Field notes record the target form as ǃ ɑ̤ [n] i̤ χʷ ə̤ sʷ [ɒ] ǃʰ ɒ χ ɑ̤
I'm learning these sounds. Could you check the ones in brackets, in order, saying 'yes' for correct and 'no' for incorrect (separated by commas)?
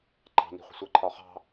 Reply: yes, no